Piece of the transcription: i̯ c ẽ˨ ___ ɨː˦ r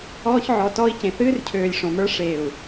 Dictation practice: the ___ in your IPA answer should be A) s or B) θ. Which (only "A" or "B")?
B